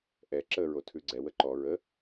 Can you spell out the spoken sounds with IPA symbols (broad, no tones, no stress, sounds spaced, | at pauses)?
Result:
ʔ ɛ ǁ ə ɹ o tʰ ʉ ɡ͡ǀ ɛ w ə ǃ ɔ ɹ ə